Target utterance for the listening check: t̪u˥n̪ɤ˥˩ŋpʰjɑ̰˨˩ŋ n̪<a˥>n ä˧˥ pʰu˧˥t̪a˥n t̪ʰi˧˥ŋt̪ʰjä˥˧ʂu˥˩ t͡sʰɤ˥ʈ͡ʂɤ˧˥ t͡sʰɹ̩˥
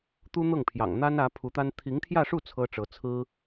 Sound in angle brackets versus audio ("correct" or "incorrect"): correct